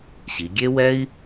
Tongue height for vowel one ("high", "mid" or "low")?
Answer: high